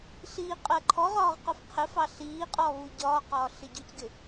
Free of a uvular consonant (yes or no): no